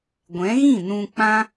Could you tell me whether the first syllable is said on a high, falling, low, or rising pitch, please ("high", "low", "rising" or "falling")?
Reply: rising